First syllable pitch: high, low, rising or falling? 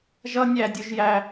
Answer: high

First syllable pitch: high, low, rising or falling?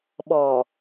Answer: low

